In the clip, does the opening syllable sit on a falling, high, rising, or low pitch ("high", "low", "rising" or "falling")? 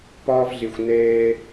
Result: high